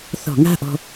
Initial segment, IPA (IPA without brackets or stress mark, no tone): θ